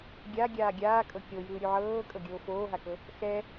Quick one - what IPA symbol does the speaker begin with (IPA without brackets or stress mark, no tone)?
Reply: ɡʲ